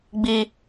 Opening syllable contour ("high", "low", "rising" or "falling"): high